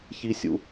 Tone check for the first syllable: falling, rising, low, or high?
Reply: high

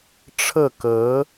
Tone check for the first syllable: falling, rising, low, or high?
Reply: falling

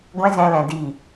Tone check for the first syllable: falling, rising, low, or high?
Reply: high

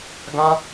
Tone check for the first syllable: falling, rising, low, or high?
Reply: high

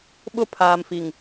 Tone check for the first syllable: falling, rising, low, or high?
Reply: falling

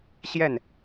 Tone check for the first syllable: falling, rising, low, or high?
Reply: falling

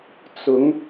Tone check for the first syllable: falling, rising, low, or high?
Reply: rising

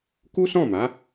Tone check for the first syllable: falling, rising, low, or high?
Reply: high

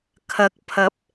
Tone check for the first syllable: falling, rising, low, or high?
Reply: rising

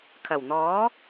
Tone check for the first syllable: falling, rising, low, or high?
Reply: low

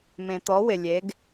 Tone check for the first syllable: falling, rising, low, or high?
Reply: low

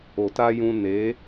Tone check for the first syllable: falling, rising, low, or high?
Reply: low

